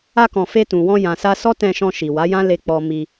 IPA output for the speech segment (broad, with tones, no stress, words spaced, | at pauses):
a˧kɔ̃˨ fe˧tũ˨wɔ̃˧ jã˨sa˧sɔ˦ tɛ̃˧ʃɔ̃˧ ʃi˨wa˨˦jã˦le˧ k͡pɔ˧ mi˧